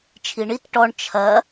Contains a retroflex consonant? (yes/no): yes